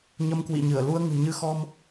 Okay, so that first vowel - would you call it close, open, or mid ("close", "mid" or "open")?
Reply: mid